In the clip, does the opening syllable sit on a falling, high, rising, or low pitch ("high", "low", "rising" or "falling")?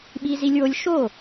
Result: high